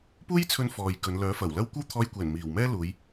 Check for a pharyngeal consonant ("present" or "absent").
absent